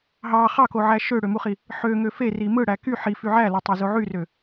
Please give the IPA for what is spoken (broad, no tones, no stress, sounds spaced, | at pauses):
ɦ ɑ χ ɑ k o ʕ æ ʃ ø ɽ ø m u χ i | ħ ø ŋ ø f e r i m ɯ ɽ æ k y ħ i f y ʕ æ l ɑ tˤ ɑ z o ʕ y r ø